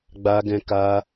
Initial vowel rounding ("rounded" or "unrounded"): unrounded